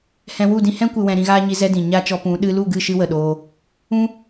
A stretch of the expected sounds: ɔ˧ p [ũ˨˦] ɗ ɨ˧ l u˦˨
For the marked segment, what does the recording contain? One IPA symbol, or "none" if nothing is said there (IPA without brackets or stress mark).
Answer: ũ˨˦